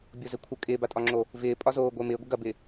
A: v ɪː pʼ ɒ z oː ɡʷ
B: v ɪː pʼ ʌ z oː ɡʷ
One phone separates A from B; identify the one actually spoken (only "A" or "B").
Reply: A